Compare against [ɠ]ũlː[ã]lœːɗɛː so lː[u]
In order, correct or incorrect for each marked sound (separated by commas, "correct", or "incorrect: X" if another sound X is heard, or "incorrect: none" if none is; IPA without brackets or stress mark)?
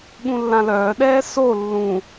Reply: correct, correct, incorrect: ũ